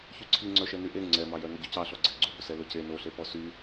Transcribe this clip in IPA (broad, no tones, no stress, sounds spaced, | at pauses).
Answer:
ç y ǀʰ i ŋ͡ǀ œ ʃ ɛ n y ʔ e ŋ͡ǀ ɛ m ɑ j œ n ɵ ɟ ʉ c ɑ ɬ ɔ ɡ͡ǀ e ɡ͡ǀ u b ɵ s ɛ l ɵ c e n o ɬ e p ɔ s y